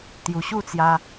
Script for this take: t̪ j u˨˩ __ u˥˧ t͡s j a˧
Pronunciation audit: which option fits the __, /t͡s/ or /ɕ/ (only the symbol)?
ɕ